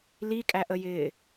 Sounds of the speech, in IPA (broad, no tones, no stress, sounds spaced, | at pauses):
l i kʼ æ ʔ ə j ɪː